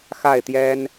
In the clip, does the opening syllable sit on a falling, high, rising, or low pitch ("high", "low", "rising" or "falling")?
falling